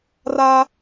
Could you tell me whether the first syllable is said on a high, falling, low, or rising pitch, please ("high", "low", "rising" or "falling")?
high